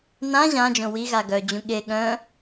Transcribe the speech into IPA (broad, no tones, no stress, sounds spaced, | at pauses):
n ã ʑ ã d͡ʒ õ w i ɣ a ɡ œ d͡ʑ ũ ɠ e ɠ œ̃